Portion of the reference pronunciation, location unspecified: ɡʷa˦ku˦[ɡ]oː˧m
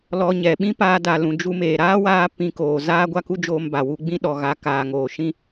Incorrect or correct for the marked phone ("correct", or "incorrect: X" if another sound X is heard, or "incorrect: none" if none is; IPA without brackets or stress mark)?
incorrect: d͡ʒ